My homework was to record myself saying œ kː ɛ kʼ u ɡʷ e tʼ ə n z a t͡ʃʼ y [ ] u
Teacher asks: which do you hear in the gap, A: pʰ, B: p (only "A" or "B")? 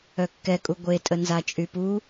B